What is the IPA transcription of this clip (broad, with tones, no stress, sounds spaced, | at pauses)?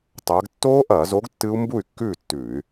tˤ ɐː˨˥ ɡ tː oː˦˥ ʔ ɐː˧˩˧ z o˨˥ ɡ tː ɨ˦˥ u̯ m b u˥˩ y̯ kː ʉː˥˩ tː ʉː˧˩˧ y̯